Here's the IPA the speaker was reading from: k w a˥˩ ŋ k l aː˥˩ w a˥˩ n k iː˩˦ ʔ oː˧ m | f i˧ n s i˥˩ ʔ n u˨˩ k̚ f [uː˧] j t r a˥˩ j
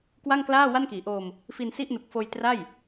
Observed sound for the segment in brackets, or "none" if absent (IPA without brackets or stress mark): oː˧